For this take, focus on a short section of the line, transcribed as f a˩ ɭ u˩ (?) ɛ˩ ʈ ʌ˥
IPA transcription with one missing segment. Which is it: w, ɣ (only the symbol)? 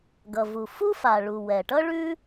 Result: w